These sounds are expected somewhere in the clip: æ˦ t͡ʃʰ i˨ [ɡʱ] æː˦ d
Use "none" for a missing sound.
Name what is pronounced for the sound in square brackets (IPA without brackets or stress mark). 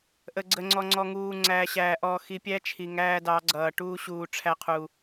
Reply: ŋ